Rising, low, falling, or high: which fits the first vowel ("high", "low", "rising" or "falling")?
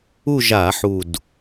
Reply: falling